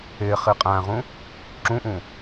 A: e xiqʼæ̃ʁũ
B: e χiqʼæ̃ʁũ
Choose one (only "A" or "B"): B